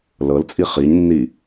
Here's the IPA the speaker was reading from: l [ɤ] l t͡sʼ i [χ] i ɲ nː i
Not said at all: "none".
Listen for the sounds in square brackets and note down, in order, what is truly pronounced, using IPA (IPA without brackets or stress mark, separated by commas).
ɤ, χ